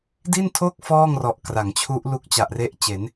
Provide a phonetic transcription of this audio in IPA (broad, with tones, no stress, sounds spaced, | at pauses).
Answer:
d i˥˩ n tʰ o˥˩ k̚ f ɔː˥˩ ŋ r ɔ˨˩ ʔ k r a˩˦ ŋ t͡ɕʰ u˦˥ ʔ l u˦˥ k̚ t͡ɕ a˨˩ ʔ r e˦˥ ʔ t͡ɕ e˩˦ n